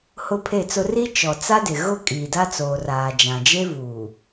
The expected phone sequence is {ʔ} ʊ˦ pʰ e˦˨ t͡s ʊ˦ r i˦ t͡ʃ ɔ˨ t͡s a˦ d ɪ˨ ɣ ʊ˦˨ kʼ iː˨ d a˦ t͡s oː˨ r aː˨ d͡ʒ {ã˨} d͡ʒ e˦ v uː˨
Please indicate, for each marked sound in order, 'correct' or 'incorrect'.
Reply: incorrect: h, correct

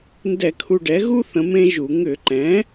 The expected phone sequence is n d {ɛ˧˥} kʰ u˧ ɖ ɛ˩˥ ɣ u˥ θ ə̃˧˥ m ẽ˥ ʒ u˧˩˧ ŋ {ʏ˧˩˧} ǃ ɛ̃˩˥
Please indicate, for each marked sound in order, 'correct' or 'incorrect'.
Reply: incorrect: ɛ˧˩˧, correct

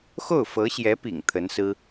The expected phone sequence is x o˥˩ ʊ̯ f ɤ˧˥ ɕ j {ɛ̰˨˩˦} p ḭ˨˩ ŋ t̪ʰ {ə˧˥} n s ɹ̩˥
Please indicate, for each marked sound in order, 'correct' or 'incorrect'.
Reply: incorrect: ɛ˧˥, correct

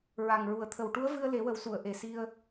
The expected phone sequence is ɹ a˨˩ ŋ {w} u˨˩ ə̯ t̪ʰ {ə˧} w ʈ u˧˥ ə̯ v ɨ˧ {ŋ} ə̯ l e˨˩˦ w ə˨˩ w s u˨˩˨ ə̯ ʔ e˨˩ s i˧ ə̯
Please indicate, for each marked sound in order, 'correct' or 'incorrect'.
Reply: incorrect: ɹ, incorrect: ə˨˩, incorrect: none

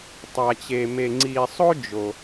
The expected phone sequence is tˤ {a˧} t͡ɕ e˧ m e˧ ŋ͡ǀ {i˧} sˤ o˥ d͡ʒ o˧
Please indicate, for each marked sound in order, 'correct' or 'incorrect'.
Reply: correct, correct

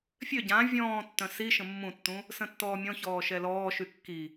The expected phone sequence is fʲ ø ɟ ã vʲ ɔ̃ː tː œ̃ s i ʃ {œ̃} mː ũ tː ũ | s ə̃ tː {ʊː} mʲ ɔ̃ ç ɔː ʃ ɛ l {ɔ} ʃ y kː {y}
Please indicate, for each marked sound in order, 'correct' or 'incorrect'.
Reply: incorrect: ə̃, incorrect: ɔː, incorrect: ɔː, incorrect: i

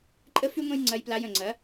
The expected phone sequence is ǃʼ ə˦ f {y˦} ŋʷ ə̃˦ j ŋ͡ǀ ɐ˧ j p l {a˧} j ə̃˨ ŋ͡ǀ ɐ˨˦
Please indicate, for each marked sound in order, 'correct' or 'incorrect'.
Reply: correct, correct

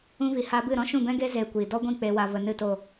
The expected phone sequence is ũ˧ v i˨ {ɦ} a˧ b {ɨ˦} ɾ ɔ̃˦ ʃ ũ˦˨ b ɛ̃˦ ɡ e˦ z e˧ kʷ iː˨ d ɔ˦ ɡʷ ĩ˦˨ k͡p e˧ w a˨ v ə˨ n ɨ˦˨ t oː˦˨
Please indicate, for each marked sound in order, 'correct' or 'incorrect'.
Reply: incorrect: h, incorrect: ɨ˦˨

